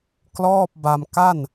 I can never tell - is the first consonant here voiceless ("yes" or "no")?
yes